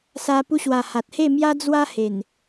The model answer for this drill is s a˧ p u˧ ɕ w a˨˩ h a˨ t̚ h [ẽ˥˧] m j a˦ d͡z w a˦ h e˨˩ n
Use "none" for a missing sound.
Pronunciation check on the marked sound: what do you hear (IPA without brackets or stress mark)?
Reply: e˥˧